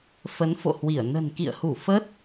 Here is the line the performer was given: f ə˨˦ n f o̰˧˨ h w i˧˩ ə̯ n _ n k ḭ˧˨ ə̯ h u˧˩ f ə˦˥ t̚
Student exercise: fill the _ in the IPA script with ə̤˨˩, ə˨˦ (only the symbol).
ə̤˨˩